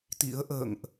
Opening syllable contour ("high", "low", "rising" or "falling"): rising